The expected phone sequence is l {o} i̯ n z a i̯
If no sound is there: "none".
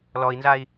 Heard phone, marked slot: ɔ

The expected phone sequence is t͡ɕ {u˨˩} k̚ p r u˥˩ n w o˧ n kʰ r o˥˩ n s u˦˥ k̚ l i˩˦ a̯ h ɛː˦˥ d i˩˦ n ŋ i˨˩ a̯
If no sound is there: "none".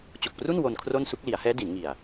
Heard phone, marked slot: o˨˩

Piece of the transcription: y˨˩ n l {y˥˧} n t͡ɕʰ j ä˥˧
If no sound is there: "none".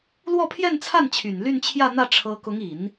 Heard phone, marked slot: y˥˧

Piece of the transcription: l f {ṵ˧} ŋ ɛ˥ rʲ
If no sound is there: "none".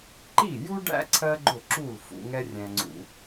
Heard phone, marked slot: ṵ˧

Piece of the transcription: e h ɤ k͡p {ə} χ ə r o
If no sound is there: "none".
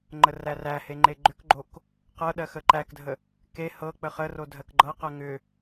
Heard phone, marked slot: ə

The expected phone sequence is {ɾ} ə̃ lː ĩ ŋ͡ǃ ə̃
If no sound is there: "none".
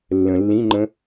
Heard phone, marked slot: lː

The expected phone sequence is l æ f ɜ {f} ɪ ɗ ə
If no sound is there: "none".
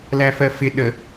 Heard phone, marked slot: f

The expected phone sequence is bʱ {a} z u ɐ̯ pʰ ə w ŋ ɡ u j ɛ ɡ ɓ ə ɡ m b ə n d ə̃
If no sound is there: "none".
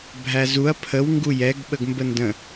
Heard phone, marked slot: æ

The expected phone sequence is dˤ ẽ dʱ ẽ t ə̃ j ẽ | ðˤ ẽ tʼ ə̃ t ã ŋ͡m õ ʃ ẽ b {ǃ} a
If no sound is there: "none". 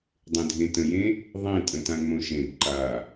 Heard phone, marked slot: ǃ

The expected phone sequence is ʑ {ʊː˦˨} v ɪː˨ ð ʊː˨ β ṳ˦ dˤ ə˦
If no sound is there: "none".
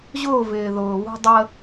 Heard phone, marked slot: ʊː˦˨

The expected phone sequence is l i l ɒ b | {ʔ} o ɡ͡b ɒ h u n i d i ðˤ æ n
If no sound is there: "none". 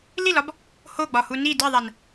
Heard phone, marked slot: h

